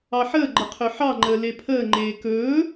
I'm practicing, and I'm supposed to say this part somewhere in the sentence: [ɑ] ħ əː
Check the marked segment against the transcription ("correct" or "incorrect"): correct